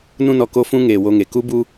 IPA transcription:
nũ˧nɔ˨ ko˦fũ˦ ŋeː˨wo˧ŋe˨ ku˦bu˦

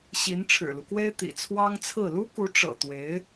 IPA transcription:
ɕi˧˥nʈ͡ʂʰɻ̩˨˩lu˦kwe˥ɪ̯ t̪ḭ˨˩t͡sʰwɑ˥ŋt͡sʰɹ̩˥˩ lu˥ku˧˥ ʈ͡ʂɤ̰˨˩t̪we˧˥ɪ̯

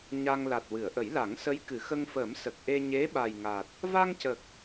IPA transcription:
ɲa˧ŋ la˨˩t̚wɨ˨˩˨ə̯ʔə˨˩˦j la˨˩˦ŋsə˧˥j kɨ˨˩˨xə˧ŋfəː˨˩˦m sə˨˩k̚ʔe˧ ɲe˧˥ ɓa˨˩jŋa˨˩t̚ | va˧ŋcə˨˩k̚

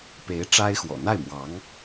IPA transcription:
pe˧˥ɪ̯ ʈ͡ʂa˥ɪ̯xwɔ̰˨˩ n̪a˥˩ɪ̯mwɑ˧˥ŋ

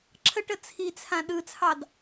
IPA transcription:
ǁʰəʈə t͡sʰit͡sʰã ɗɯt͡sʰɑd

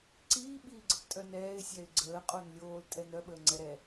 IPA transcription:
ǀiː ɓiːɡ͡ǀəptʼœnɛːɪ̯ sʲɛɪ̯ɡ͡ǀəː qʼonlʲoːl tʼɛnœ ɓəːŋ͡ǀɛɾɛ

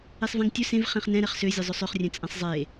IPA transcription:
esˤvɛ̃ŋtʲɵ sẽv χẽχnɛ̃ɾɛχ søzʲɵ zˤɵsˤøχrʲɛ̃ t͡sʼɛ̃sˤzˤe

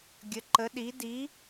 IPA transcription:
ɡʲə˨˦ǃə˨˦ ɗi˨˦ di˨˦

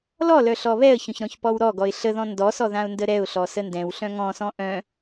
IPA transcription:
lɔlœ ɬɔβɛə̯çœ̃ç ɾɔ̃çpɔwɾɔɡɔɪ̯ ɬəðɔ̃ ndɔsɔ ðãʊ̯ndəɾɛʊ̯ɬɔ səndɛ̃wɬœ̃ ŋɔ̃sɔ̃ ʔœ̃

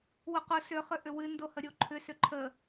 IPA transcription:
wʊqʊ sʏχʏ ʔʏwɨndohə ɾʲoǃʰʏsʏ ǃʰə

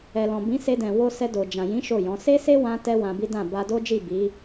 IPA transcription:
ɛ˨lɔ̃˨bĩ˨˦ se˧dɛ̃˨ wo˧sɛ˧do˨ d͡ʒã˨jĩ˨˦ ʃo˦˨jɔ̃˨˦ se˦se˦wã˧ tɛ˦wã˧bi˦dã˦˨ ba˧do˦d͡ʒi˦˨ bi˨˦

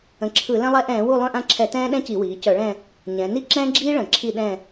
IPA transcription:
ə̃˩˧ǁʰɯ˧˩˧ lɛ̃˥lˠɛ˥ ʔɛ̃ː˧˩˧wu˦˨ lˠœ̃˦˨ʔã˦˨ǁʰɛ˧˩˧ tɛ̃ː˥ɗɛ̃˥ci˧˩˧wiː˩˧ cœ˧˩˧ɭɛ̃˦˨ | ɲɛ̃˩˧ ni˥ ǁɛ̃ː˥ ɡ͡ǁiː˥ ɭə̃˧˩˧ ǁʰi˦˨ɗɛ̃˦˨

